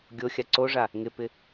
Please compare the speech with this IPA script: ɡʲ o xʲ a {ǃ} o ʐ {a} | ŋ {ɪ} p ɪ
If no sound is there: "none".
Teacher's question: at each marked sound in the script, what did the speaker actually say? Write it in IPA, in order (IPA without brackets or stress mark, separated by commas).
ǀ, a, ɪ